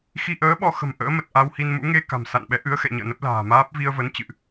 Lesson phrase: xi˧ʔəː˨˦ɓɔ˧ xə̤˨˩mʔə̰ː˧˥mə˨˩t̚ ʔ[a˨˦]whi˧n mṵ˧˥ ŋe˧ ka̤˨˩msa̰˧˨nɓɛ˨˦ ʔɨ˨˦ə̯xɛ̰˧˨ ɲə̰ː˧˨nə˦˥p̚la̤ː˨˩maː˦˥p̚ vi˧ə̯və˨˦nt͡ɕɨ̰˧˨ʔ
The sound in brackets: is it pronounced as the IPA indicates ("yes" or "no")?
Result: no